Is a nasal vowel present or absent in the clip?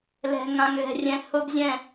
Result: present